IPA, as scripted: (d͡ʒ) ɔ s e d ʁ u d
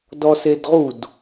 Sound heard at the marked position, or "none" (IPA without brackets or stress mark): d